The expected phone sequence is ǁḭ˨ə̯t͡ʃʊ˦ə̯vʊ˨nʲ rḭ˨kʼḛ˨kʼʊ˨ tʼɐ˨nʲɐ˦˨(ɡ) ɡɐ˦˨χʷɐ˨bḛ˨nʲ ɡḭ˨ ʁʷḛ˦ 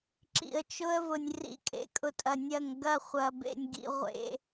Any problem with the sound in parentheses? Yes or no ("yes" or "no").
yes